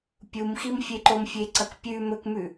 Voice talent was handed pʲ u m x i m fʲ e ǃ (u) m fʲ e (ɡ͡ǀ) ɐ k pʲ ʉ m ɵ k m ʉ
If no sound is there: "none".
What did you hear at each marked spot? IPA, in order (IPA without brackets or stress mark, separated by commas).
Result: o, ǀ